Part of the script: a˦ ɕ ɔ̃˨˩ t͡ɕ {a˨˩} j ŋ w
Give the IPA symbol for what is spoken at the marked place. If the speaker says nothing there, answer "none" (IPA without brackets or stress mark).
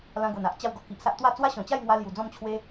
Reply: a˥˧